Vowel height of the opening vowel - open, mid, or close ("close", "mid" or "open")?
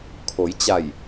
mid